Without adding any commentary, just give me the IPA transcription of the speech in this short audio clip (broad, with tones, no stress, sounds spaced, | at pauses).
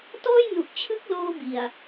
t ɔː˥˩ j n u˨˩ ʔ t͡ɕʰ ɯ˦˥ k̚ l oː˧ b i˨˩ a̯